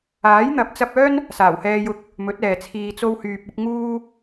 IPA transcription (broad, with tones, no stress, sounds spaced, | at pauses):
aː˨˥ j n̪ ɐ˨˥ p̚ t͡s ɐ˧ p̚ œː˥ n | s aː˨˩ w h ɛː˧ j ʊ˧ k̚ | m ɵ˨˥ t̚ ɛː˨ t͡sʰ iː˧ t͡s o˥ w h yː˧ p̚ ʊ˥ k̚ ŋ uː˥